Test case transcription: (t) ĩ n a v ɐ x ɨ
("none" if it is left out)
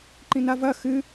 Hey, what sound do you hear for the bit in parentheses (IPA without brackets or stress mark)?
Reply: ǃ